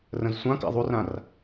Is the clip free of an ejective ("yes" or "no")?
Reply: yes